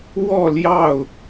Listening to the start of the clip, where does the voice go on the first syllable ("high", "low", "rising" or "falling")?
falling